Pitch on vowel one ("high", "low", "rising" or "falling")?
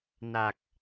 low